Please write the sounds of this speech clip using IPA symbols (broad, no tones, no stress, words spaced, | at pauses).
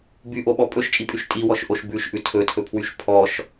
byʔoɓɔ pʼɵʃt͡ʃʼipʼyʃ tʼiwɔʃʔoʃ bʉʃʔʉ tʰɵtʰɵpʰwyʃ pʰɔʃ